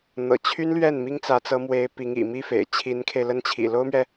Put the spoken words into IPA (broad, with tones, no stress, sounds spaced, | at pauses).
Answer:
n̪ ɤ̰˨˩ t͡ɕʰ y˥ n l ɥ ɛ˥˩ n m i˥ ŋ t͡s ä˧˥ t͡s ɤ˧˥ m w e˧˥ ɪ̯ p i˧˥ ŋ ḭ˨˩ m i˥ f ḛ˨˩ ɪ̯ t͡ɕʰ i˧˥ n kʰ e˧ ɪ̯ l ə˥ n t͡ɕʰ ḭ˨˩ l o˥ ʊ̯ m ɥ ɛ˨